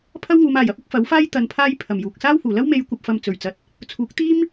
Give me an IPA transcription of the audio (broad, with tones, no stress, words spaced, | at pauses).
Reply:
pʰɐ˥wŋuː˨˧maː˨jɐ˨˥p̚ ʊ˨˥k̚fɐ˨˥wfaː˥j t̪ɐ˧npʰaː˥j pʰɐ˨˩mjuː˨k̚ saː˥whuː˨˩lɐ˥w me˨˧jkʷɐ˨p̚fɐ˨m t͡sɵ˨˩ɥt͡sɐ˨˥t̚ | t͡sʰuː˨˥k̚t̪iː˥m